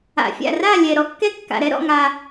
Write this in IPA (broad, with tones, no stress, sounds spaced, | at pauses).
a̰˩ fʲ a̰˧˩ r a˥˨ lʲ ɛ˩ ɾ ɔ˨˦ kː ɛ˥ kː a̰˩ ɾ ɛ˨˦ ɾ ɔ̰˥˨ ŋ a˩